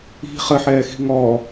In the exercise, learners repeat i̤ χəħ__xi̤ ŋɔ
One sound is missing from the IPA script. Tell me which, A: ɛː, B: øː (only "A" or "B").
A